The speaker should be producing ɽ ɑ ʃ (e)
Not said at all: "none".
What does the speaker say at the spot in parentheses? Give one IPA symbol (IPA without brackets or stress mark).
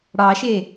e